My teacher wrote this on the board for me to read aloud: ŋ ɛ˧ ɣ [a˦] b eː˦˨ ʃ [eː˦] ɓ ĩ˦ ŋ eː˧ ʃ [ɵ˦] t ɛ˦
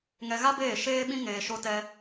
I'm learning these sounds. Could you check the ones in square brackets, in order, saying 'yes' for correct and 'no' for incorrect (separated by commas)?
yes, yes, no